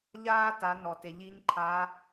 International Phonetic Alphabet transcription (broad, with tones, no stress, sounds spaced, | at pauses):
ʎ aː˧ t a˩˧ n ɔ˩ t e˩ ʎ i˧˥ ɲ ǃʰ a˧˥